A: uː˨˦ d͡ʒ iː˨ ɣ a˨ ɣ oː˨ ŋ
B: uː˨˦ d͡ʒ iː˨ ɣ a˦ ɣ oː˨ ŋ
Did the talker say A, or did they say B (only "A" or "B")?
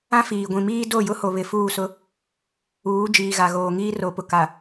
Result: A